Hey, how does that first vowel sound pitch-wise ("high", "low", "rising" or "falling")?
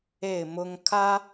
falling